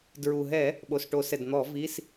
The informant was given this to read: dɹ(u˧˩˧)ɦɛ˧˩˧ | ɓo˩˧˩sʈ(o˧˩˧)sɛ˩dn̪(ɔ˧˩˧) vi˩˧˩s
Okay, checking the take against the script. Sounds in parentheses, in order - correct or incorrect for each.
incorrect: u˩, correct, correct

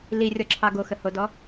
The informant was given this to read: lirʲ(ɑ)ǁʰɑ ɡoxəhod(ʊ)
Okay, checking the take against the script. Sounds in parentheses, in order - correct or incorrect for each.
incorrect: ɔ, incorrect: ɔ

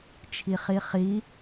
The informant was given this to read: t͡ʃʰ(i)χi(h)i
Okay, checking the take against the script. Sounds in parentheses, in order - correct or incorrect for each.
correct, incorrect: χ

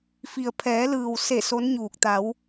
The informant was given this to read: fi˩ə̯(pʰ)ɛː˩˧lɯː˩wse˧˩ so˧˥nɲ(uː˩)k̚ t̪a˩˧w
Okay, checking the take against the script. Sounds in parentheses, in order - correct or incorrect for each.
correct, incorrect: uː˧˩

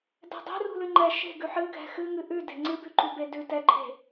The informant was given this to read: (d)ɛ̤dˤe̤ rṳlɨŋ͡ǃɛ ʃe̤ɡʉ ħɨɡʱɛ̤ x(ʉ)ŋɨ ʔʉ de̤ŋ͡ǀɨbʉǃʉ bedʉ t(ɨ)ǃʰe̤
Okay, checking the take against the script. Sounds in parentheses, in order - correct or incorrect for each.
correct, incorrect: ɨ, incorrect: ɛ

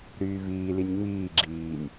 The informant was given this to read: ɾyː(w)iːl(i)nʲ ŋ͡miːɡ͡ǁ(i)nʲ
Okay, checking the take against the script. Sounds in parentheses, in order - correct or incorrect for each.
incorrect: v, correct, incorrect: iː

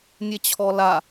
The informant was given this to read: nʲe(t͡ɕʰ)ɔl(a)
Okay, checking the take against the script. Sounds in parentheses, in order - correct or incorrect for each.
correct, correct

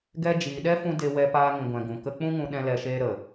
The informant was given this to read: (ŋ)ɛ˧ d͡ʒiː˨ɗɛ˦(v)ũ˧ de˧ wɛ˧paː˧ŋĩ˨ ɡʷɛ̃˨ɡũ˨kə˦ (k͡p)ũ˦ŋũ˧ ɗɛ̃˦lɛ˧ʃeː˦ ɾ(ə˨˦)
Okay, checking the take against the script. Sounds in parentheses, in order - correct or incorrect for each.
incorrect: ɡ, incorrect: f, correct, incorrect: ə˨

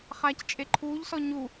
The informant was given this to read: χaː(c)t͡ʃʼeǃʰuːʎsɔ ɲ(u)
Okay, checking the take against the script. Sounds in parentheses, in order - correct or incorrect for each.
correct, correct

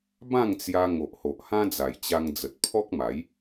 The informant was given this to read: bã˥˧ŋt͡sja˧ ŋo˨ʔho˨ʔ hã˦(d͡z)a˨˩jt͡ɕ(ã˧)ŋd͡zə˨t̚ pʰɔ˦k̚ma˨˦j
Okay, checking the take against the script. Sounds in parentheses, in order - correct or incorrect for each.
correct, incorrect: a˧

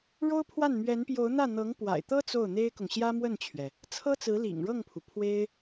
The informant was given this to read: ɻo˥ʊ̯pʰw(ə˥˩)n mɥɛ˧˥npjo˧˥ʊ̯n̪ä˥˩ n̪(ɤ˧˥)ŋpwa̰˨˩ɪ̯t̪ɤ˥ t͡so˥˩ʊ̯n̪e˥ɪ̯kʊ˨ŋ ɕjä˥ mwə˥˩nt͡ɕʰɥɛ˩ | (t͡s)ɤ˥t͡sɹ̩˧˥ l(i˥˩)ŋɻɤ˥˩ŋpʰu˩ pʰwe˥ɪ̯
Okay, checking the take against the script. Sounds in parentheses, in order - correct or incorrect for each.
incorrect: a˥˩, correct, incorrect: t͡sʰ, incorrect: ḭ˨˩

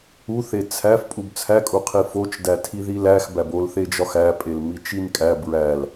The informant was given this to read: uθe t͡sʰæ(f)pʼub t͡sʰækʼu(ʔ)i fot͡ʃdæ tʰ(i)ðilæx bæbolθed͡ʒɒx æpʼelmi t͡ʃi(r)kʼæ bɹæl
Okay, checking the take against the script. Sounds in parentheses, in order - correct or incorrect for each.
correct, incorrect: qʰ, correct, incorrect: n

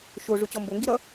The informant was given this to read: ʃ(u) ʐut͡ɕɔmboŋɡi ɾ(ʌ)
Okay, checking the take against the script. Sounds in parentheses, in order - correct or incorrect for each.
incorrect: o, correct

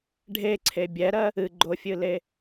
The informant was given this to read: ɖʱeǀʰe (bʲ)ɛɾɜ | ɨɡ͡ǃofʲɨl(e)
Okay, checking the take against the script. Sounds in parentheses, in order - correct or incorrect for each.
correct, correct

